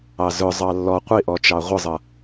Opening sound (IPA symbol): ɑ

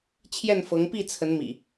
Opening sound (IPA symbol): t͡ɕʰ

